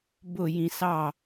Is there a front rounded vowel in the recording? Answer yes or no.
no